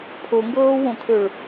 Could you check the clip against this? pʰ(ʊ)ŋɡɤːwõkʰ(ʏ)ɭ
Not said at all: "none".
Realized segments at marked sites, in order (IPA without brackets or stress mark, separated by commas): ʊ, ʏ